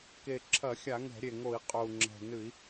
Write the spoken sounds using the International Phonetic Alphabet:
k e˨˩ ǁʰ ɐ˧˩˧ xʲ a˧˩˧ ŋ ɛ̤˧˩˧ ɾʲ e˨˩ ŋ o˧˩˧ i̯ qʼ o˨˩ u̯ ŋ͡ǁ ɛ̤˨˩ n ɨ˧˩˧ i̯

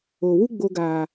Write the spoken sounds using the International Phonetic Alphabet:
o˨ w u˦ ɡ͡b o˧ ɡ aː˨

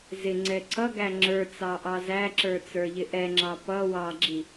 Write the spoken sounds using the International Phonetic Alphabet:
z ɪ ŋ͡ǀ ɛ ǀ ʌ ɡ æ ŋ͡ǁ ə˞ t͡s ɑ ʔ ɑ z æ ǁ ə˞ t͡s ə˞ ʎ ɪ ʔ ɛ ŋ͡ǁ ɑ p ʌ w ɑ ɡ͡ǁ i

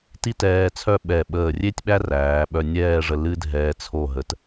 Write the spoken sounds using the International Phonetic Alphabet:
t i˥ t ɛː˧ t͡sʰ œ˥˧ ɓ ɛ˧˩ ɓ əː˧˩ rʲ e˥ tʲ ɓ æ˥ r æː˩˧ ɓ œ˧ nʲ ɛː˥˧ ʐ ə˧ l ɨ˥ dʱ ɛː˧ t͡sʰ o˧˩ ɦ ə˩˧ t

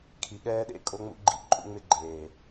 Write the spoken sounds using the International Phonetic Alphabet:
kʰ i˨ ɠ ɛː˦ ɗ ḛ˦ kʼ o˦ ŋ͡m ṵ˦ ɡ͡ǃ ḭ˦ ǃʼ ṵ˦ ŋ͡m ɪ˦ ɡ͡ǃ eː˨

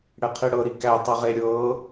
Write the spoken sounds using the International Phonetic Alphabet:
ɽ ɛ qʰ i ɽ ɤ ɾ i k æ tˤ ɤ ʁ e ɾʲ ɤ

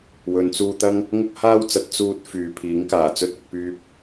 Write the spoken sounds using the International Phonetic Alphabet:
w ɵ˨˧ n t͡s uː˧ t̪ ɐ˥ ŋ | ŋ ʊ˥ k̚ h aː˥ w t͡s ɐ˨˥ t̚ t͡s uː˧ t̚ f yː˨ pʰ iː˨˥ ŋ k aː˨˩ t͡s ɵ˥ t̚ ʊ˨˥ k̚ p yː˥ p̚

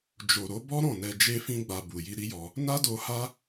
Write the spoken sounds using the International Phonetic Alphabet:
d͡ʒ o˨ ɾ o˨˦ b ɔ˦ ɾ ɔ̃˦˨ n ɛ˧ d͡ʒ e˦ f ĩ˦ ɡ͡b a˧ b u˨ j i˧ ɾ i˦ j ɔ˧ | n a˦ d o˧ h a˦

